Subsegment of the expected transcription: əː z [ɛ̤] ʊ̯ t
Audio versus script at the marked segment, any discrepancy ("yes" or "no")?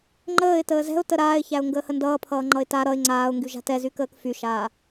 no